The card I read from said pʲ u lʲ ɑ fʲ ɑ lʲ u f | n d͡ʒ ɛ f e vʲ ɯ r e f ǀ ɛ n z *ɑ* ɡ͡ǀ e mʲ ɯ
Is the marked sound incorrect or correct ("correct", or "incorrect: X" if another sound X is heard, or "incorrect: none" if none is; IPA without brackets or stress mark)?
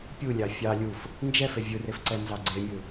correct